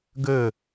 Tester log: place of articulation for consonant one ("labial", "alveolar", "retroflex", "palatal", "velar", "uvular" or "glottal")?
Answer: velar